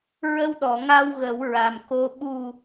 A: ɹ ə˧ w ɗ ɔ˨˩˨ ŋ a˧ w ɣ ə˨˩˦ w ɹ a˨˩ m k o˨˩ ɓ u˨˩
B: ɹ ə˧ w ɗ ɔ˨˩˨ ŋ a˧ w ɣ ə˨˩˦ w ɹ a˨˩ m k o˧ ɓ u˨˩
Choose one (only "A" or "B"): B